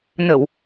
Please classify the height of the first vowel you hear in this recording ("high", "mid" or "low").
mid